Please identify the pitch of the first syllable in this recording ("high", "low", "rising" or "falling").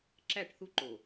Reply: falling